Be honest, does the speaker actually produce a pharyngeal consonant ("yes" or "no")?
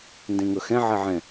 yes